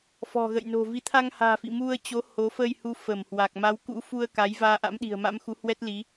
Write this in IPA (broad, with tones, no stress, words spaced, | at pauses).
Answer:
fɔ̤˨˩ɣə̰˧˨jno̤˨˩ vi˨˦ t̪ʰa˧ŋha̤ː˨˩fḭ˧˨ mu˧ə̯t͡ɕo˨˦ ho˨˦ fə˧jhu˨˦ fə˧˩mhwa˨˩k̚ ma˨˦wkṵ˧˥fu˧ə̯ ka˨˦j vaː˧ ʔa̰˧˥mɗi̤˨˩ə̯ma̰˧˥mxu˨˦ hwɛ˦˥t̚li˨˦